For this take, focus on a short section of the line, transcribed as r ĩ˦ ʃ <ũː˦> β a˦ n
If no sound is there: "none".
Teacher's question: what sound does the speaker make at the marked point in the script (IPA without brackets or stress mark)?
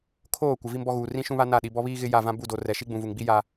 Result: ũ˦